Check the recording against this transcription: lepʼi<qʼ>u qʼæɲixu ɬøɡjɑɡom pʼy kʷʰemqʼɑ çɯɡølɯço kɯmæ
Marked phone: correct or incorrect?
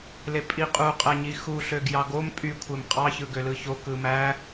correct